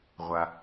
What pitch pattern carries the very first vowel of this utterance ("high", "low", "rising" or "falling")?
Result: low